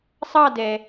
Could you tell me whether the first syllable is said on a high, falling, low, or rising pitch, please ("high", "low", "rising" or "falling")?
falling